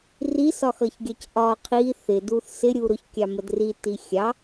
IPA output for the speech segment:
r i s ɒ x ʌ ç ɡʲ ɑ c ʔ ɒ qʰ i θ ɪ d u θ s ɪ ɾʲ u ɾ ʊ ç kʲ ɑ m ə d r i t i xʲ ɑ

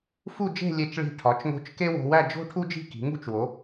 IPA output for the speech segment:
f u˥˧ d͡ʒ e̤˥˧ lʲ e˧˩ t͡ʃ ɭ i̤˧˩ ʈʰ ɒ˩˧ t͡ʃ ŋ o̤˧ t͡ʃ k e˥ w o̤˧ w æ˥˧ d͡ʒ o̤˥ ʈʰ u˥ d͡ʒ i̤˥˧ k i̤˩˧ ŋ ṳ˥ t͡ʃ w o˩˧

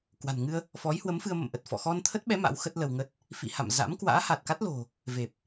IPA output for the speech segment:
k w a̤˨˩ n ŋ ɨ˧ ə̯ | f ɔ˨˦ j h w ə˨˦ m f ɨ˧ ə̯ m ə̰˧˨ m ʔ ə˨˩ t̚ f ɔ̰˧˨ x ɔ˧ n t̪ʰ ə˦˥ t̚ ɓ ɛ˨˦ m a̰˧˥ w x ə˦˥ t̚ l ə˧ w ŋ ə˦˥ t̚ | f ḭ˧˨ h a̰˧˨ m z a̰˧˥ m k w a̰ː˧˥ h a˨˩ t̚ k a˦˥ t̚ l o̤˨˩ | v e˨˩ p̚

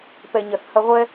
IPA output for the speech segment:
p ɛ˩ ɲ ɐ˩ θ h ɐ˧ ʁʷ ɛ˥

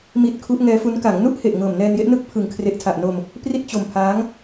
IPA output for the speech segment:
m i˦˥ t̚ kʰ u˦˥ ʔ ŋ ɛː˦˥ f u˦˥ n k a˩˦ ŋ n u˥˩ ʔ h e˨˩ ʔ ŋ ɤː˨˩ m n ɛː˧ n j e˦˥ ʔ n ɯ˥˩ k̚ pʰ ɯ˨˩ ŋ kʰ r e˨˩ ʔ tʰ a˨˩ ʔ n o˧ m | p r i˥˩ t̚ t͡ɕ o˧ m pʰ aː˦˥ ŋ

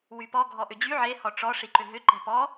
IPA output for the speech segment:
w y p ɔ ɡʱ ɔ ʔ ʏ d͡ʑ y ʕ e h ɔ ʈ͡ʂ ɔ ʂ i ǃ ʏ ɦ ʏ ǃ ɛ̤ p ɔ

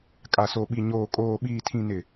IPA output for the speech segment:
kʼ a˨ s o˨ ɓ i˨ ɲ oː˨ kʼ oː˨ ɓ iː˨ tʰ ĩ˨ n ɪ˨

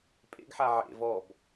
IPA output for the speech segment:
pʼ ḛ ɡ ħ a ʕ ḛ v ɔ b

